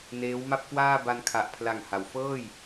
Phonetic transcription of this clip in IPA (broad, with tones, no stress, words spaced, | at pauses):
neː˦˥wma˥˩p̚ kwaː˥˩ ba˧nkʰa˨˩ʔpʰla˨˩ŋ ha˩˦w fɤː˥˩j